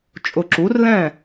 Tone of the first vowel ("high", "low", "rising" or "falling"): low